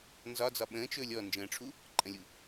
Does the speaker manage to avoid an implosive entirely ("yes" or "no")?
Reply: no